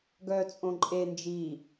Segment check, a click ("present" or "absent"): present